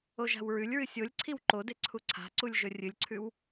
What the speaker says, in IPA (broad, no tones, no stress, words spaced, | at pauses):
oʒa̤wɹʉlʲɹɨ sʲolʲ ǀʰiwǃode ǀʰuǀʰa̤ǀulʲ ʒɵrʲɨlʲǀʰʉw